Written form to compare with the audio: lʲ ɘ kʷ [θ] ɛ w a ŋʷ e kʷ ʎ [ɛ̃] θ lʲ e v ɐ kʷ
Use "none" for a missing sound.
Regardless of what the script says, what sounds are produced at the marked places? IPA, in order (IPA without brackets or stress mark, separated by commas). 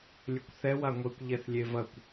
θ, ɛ